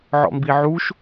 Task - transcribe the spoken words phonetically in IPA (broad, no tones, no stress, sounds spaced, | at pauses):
ʕ ɔ̰ m b i ʕ u ʃ